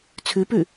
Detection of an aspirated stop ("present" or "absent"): present